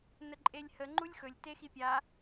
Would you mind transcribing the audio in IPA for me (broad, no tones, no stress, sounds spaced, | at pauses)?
n ə ǃʼ e lʲ h ə ŋ͡ǃ u lʲ x ɵ lʲ t e x i pʲ a